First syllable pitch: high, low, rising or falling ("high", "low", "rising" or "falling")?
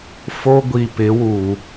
high